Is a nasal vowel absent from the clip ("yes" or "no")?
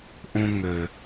no